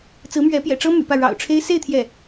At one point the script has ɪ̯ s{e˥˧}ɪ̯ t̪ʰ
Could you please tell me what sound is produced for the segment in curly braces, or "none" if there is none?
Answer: e˥˧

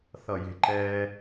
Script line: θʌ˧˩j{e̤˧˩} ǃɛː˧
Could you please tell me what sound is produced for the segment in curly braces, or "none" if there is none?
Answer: e̤˧˩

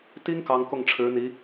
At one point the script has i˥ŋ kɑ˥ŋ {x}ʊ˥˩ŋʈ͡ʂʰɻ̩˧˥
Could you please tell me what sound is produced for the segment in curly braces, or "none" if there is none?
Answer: k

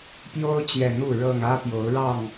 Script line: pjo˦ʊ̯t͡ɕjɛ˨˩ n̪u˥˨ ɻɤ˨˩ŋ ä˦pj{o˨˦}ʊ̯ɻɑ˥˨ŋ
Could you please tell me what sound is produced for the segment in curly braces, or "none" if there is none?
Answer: o˨˦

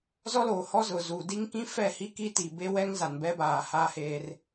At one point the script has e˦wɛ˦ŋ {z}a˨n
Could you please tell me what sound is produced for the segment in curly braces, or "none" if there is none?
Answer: z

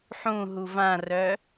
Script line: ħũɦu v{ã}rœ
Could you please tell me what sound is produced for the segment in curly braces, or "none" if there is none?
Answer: ã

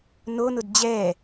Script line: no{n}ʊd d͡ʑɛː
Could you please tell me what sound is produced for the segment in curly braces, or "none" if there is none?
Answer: n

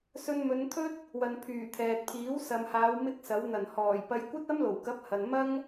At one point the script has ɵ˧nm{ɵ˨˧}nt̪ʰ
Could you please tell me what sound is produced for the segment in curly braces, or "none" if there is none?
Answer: ɵ˨˧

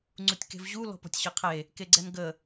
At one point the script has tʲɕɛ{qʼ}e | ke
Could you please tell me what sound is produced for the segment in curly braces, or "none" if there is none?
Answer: qʰ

